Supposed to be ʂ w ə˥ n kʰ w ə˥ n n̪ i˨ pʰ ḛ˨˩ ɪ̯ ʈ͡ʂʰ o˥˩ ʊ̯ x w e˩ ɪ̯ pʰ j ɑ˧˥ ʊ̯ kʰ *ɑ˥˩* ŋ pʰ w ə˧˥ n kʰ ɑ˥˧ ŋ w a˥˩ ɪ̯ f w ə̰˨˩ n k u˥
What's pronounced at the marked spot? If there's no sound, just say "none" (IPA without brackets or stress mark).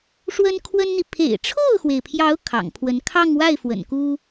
ɑ̰˨˩